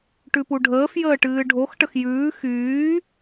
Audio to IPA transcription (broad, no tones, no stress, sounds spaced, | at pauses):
ʈ ʉ p u ɖʱ əː f j əː ʈ ɨː ɖʱ o x ʈ ə x j ʉː x yː